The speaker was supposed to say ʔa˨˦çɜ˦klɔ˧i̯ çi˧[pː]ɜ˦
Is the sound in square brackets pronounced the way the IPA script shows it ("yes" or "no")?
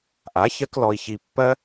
yes